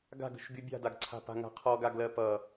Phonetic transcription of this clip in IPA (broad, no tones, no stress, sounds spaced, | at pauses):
ɡ a̤ ɡ ə̤ ʃ ɡ y bʲ a̤ d a ɡ ǀʰ a̤ p a̤ ŋ a̤ qʰ ɔ ɡ a ɡ l ɜ p ʌ